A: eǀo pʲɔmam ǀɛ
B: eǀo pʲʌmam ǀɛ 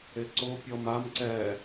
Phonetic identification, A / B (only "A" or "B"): A